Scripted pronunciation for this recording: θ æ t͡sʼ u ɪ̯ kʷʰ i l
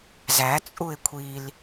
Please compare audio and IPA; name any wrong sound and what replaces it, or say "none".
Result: θ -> z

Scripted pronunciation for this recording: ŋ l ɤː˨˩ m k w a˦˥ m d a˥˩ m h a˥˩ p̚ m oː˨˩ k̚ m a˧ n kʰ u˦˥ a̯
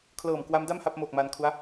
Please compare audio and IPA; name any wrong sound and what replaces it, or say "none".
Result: ŋ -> kʰ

